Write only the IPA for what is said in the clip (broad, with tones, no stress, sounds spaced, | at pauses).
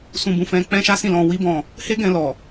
s ũ˧ b ũ˧ f ɛ̃˧ k͡p ɛ̃˦ ʃ a˦ s ĩ˦˨ l ɔ̃˧ w i˦ b ɔ̃˦˨ | h e˦ ɡ ɛ̃˧ l ɔ˨